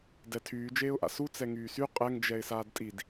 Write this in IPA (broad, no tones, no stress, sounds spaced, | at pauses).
d ɛ tʰ yː d͡ʒ eː ʊ̯ ʔ a̰ s u t͡s ɛ ŋ yː s y qʼ ɛ ŋ d͡ʒ ɛ ɪ̯ s aː d tʼ i d